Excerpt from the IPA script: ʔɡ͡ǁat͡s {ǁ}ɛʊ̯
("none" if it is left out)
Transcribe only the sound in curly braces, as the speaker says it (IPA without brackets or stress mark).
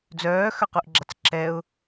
ǁ